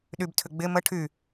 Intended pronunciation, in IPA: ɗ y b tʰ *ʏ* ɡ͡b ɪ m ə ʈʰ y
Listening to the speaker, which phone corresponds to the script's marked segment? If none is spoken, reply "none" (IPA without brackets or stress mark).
ʏ